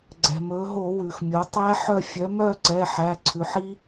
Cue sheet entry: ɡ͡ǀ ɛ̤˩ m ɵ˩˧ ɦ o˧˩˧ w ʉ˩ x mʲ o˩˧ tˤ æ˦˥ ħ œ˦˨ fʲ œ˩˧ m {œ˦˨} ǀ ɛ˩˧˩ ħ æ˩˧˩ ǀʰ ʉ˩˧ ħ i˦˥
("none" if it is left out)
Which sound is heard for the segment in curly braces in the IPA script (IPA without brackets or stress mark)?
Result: œ˦˨